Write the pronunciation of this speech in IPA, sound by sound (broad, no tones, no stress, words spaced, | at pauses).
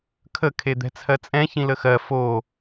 kʰə kʰed̪ɛ̤t͡sʰɜt͡sʼɛ̃ çĩləxɜ fo